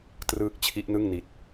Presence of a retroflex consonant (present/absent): absent